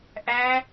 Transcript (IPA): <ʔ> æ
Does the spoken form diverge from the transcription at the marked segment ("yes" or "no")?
no